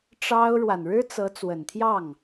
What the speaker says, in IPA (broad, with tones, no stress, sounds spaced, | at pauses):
ʈ͡ʂ ɑ˥ ʊ̯ ɻ w a˨ n ɻ ɻ̩˥ t͡s ɤ˧˥ t͡s w ə˨˩ n t̪ʰ j ɑ˥˩ ŋ